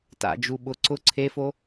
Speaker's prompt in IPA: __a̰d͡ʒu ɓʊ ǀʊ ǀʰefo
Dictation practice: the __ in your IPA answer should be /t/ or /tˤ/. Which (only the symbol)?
t